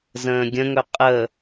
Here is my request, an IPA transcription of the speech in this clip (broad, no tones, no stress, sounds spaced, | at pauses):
z ə̃ː ɡʲ ə̃ ŋ ɵ qʼ ə